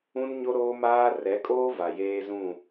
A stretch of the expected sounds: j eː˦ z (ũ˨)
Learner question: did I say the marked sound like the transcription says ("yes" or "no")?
no